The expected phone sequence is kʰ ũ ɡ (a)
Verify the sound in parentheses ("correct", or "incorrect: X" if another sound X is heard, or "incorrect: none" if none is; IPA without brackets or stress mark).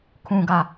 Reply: correct